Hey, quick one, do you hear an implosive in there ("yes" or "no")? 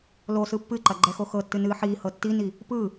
no